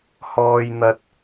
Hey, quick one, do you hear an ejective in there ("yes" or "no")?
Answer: no